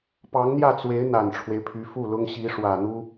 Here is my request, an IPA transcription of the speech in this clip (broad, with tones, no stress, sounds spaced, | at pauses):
p ɑ˧˥ ŋ n̪ j ä˥˩ t͡s w e˧˥ ɪ̯ n̪ a˨˩ n ʈ͡ʂʰ w e˦ ɪ̯ pʰ y˧˥ f u˥˩ l ʊ˥ ŋ ɕ i˧˥ ʂ w ä˨˩ n̪ u˥